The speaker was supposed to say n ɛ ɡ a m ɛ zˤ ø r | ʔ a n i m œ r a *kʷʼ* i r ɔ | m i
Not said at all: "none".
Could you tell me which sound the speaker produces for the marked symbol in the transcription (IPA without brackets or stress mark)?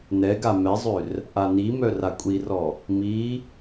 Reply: kʷʼ